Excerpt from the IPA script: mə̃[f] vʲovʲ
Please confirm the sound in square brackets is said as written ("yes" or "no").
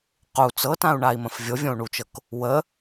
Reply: yes